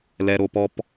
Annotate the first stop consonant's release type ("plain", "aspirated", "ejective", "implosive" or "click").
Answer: plain